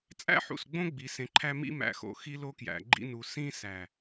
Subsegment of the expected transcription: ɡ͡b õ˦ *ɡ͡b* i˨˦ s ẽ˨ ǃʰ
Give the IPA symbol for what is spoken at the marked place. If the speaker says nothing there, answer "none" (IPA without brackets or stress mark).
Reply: ɡ͡b